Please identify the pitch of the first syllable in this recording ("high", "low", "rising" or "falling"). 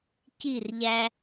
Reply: falling